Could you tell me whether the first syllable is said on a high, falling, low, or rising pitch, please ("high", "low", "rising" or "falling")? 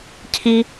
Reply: high